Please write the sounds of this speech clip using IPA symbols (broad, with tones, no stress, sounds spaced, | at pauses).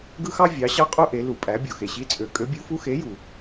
ɡ ɯ˦ x ɑ˦ vʲ ɑ˩˧ ɕ ɑ˦ qʼ u˦ ʔ e˩˧ l u˩ pʼ æ˩˧ bʲ o˩ x e˩ ɕ i˨˥ t͡sʼ ø˩ kʼ ø˨˥ bʲ u˨˥ f u˦ x e˨˥ j u˩